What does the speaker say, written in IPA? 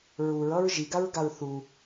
ɹuɹʌɹ ʒiɡaɹɡaɹ θu

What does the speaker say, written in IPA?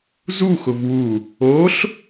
zuxʊv wu | oɬ

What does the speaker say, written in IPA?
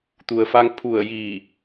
t̪u˩ə̯fa˧ŋ pʰu˧˩ə̯jiː˧˩

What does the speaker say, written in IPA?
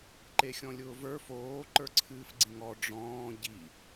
ǃexʲɔ̃lʲʊːvə˞ foː ǃə˞ǀʰɨːfɡ͡ǀĩŋɔ ɖ͡ʐɔ̃ː ɟi

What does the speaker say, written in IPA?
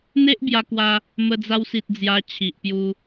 n̪e˦ʔbja˧kwa˧ | mə˧d͡za˧wsi˨t̚ d͡zja˧t͡ɕʰi˨ʔpju˧

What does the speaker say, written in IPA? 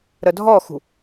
ɾədʱɔxṳ

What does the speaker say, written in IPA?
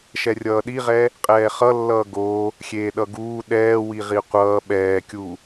ʃɛrʲʌːɗiʁɛ | qʼɛːχʌlːʌː ɡo | xʲeːɗʌɡuː ɗɛːwi ʁiqʷʌː ɓɛːkʲu

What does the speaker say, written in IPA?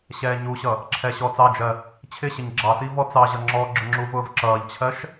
ɕɛːɲuɕʌ | ǁʰɛɕɔːt͡sɑd͡ʒɜ | t͡ɕʰɪɕɪɲ ɡ͡ǁɑti vɔt͡sɑʑʌ ŋ͡ǁɔ ɡ͡ǁʊŋ͡ǁuvʊːv ǁʌːʎt͡ɕʰɜʃ

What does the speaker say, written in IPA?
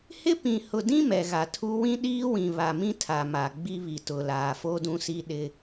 hɪ˦pĩ˨hʊ˨dĩ˦ mɛ˨ɣa˨tʰu˦ wĩ˦ ɗiː˦wĩ˨ βa˨mĩ˦ tʰa˨ma˨ ɡ͡bi˦βi˨tʊ˨ laː˨fo˦ dũ˦si˦ ɗɪ˦

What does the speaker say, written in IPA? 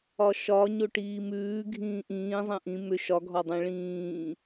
ɒʃɒ ɲoʈiːmʉː ɡʱĩːʔĩːzˤẽ ʔĩ mʏ ʃɒɡʱɒdˤẽ ɭĩː

